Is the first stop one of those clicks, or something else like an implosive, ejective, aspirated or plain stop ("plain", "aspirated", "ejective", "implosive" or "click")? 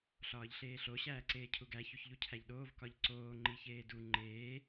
click